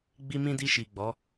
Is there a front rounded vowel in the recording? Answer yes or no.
no